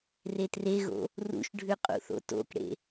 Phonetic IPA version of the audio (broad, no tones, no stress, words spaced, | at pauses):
retreɣo̰ | rṵʃɖʱʉ qʼṵθo̰to̰kɽḛ